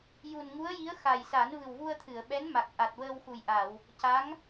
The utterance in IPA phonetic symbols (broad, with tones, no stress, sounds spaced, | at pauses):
j u˨˩ n ŋ u˧˥ ə̯ j i˧˥ ə̯ x a˨˩ j s a˨˩˦ n v ɨ˨˩ w v u˧ ə̯ t̪ʰ ɨ˨˩˨ ə̯ ɓ ɛ˧˥ n m a˨˩ k̚ ʔ a˨˩ t̚ w əː˧ w x u˨˩ j ʔ a˨˩˨ w | c a˧˥ ŋ